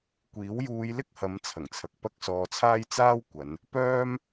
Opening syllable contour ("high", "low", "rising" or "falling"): rising